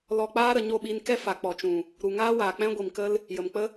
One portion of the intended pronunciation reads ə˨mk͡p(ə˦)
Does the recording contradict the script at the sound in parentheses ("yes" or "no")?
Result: no